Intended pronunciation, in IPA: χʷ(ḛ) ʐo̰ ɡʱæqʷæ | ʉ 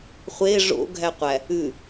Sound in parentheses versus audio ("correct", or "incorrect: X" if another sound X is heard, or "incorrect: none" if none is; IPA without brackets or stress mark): incorrect: e